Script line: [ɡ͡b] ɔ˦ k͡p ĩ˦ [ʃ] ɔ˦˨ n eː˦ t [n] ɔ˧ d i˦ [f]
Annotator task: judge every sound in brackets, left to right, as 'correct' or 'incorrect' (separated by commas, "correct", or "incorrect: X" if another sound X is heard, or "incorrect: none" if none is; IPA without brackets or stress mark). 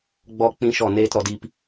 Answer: correct, correct, incorrect: ɾ, incorrect: p